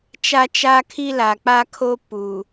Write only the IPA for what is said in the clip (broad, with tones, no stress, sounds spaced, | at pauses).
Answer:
t͡ʃ a˦ t͡ʃ a˦ kʰ i˦ l a˨ k͡p a˦ kʰ o˦ p u˨